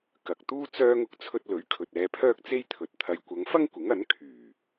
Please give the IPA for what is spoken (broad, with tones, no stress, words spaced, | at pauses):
kɐ˨k̚t̪uː˥ t͡sœː˥ŋʊ˥k̚ t͡sʰɵ˧t̚lɵ˨˥ɥkʰɵ˨t̚ ɛː˧pʰœː˥k̚t͡se˥jt̪ʰɵ˨t̚ t̪ʰɐ˨jkʷɐ˨˧ŋfɐ˥ŋ kʷɪ˨˥ŋɐ˨˥n kʰyː˨˩